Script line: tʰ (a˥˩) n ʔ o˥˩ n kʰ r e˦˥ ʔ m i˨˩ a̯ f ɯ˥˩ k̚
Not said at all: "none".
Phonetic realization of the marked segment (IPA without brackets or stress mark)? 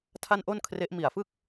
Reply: a˥˩